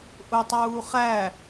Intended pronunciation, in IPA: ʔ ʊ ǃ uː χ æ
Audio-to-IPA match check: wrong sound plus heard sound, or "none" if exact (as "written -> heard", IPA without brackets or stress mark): ǃ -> tˤ